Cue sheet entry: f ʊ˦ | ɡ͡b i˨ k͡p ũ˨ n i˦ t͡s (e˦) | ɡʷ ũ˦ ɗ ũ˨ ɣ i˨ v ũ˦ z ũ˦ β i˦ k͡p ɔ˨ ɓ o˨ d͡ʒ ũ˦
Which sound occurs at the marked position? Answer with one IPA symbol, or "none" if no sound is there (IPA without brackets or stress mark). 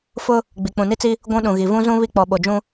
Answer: i˦